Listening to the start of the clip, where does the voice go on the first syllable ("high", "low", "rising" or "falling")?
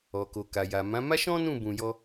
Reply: low